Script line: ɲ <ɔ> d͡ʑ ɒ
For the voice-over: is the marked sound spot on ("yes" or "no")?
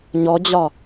yes